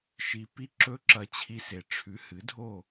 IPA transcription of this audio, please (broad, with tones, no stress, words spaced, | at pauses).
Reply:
ʃi˨ pi˦ǁɵ˦ǁɐ˧ t͡ɕʰi˧se˨ ʈ͡ʂʰʉ˨˦hɨ˨˦dʱo˦˨